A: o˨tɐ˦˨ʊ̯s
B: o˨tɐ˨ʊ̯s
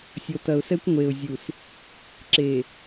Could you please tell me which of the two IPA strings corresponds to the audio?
B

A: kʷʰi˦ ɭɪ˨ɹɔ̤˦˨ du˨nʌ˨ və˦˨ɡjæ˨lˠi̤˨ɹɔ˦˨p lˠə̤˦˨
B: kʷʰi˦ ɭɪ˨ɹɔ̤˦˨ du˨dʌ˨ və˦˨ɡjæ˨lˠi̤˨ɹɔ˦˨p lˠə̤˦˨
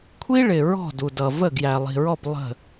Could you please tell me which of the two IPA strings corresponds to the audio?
B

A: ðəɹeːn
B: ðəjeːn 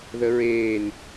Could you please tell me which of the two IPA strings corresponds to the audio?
A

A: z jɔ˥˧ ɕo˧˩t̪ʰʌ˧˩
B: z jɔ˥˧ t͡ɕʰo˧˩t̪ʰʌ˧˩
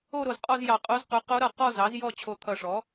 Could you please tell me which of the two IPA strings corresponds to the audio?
B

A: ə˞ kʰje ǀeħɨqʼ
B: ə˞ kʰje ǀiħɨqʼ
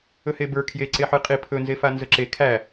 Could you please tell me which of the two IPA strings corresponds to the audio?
A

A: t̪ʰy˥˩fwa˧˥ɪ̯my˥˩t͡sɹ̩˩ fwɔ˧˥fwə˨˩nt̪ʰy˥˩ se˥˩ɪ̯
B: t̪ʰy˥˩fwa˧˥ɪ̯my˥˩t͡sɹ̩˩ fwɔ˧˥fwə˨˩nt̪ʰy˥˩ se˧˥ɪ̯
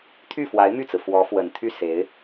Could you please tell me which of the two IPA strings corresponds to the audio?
B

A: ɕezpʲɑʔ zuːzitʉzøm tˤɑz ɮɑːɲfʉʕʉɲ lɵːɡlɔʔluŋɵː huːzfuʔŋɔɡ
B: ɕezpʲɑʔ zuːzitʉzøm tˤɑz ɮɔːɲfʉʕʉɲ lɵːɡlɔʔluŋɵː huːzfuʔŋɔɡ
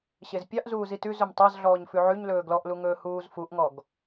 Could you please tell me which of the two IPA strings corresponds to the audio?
B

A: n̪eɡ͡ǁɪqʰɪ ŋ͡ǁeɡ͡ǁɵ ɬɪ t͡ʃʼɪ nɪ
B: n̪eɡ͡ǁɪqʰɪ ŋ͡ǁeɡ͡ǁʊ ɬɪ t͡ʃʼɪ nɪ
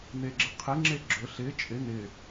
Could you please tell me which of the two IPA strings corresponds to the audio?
A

